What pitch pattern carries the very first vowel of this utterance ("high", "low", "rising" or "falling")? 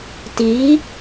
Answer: rising